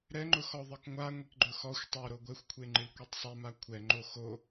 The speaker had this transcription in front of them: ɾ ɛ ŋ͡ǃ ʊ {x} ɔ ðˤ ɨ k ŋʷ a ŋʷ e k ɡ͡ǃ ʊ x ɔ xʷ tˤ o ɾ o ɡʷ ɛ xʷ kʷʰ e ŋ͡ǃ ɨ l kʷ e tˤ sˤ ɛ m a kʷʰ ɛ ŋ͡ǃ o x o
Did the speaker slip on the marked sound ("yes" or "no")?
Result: no